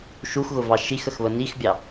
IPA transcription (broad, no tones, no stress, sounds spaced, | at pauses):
ʃ u x ɣ ʊ v ɑ ʃ i x ə x β ə n i x bʲ ɑ